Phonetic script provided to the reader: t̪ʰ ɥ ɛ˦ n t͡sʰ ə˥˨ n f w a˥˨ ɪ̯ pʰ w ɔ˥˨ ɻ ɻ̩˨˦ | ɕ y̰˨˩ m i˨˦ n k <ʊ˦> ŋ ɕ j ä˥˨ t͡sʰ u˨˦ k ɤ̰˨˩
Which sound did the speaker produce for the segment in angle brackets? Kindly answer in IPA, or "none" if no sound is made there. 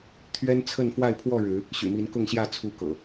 ʊ˥˨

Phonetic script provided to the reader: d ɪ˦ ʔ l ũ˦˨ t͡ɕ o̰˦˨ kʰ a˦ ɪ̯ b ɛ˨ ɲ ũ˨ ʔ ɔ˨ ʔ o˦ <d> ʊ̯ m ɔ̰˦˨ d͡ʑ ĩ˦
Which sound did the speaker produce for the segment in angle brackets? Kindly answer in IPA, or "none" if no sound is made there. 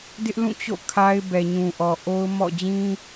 none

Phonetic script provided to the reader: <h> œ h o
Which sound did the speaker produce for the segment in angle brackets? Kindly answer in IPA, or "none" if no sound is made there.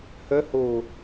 h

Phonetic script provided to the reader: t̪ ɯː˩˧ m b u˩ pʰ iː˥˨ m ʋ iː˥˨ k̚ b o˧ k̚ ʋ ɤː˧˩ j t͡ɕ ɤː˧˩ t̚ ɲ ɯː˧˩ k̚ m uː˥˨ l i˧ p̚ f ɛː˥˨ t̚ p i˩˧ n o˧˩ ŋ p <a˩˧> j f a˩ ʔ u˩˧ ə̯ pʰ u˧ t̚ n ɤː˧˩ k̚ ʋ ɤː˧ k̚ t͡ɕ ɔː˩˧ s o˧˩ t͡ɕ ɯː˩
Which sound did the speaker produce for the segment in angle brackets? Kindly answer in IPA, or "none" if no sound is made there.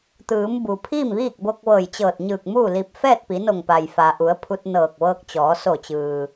a˩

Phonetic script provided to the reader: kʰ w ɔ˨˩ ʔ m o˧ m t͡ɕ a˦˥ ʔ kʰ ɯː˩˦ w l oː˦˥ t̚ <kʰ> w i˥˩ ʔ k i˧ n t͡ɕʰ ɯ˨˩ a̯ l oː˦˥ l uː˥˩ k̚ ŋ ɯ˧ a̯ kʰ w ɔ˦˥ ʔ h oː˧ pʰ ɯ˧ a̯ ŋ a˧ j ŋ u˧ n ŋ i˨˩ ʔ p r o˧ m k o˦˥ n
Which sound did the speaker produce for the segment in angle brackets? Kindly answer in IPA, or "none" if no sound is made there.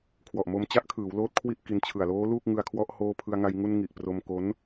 kʰ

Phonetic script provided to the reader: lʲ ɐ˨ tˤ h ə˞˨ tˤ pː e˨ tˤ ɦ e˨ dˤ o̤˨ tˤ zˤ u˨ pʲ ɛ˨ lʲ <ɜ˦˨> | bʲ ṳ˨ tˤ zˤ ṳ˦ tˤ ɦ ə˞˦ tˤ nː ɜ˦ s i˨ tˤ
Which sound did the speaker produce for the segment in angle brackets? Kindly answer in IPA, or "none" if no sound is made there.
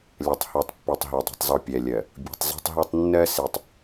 ɜ˨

